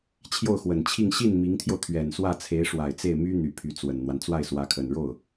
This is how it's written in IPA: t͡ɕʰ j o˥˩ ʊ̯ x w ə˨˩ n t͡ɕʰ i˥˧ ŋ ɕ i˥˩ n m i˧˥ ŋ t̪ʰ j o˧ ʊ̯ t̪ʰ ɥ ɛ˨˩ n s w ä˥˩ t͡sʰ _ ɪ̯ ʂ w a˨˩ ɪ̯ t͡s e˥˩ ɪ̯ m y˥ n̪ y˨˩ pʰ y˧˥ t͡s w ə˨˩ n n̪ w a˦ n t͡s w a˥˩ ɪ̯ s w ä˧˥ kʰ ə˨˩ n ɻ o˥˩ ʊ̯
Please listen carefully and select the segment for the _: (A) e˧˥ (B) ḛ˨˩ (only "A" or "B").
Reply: A